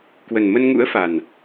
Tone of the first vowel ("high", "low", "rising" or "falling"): low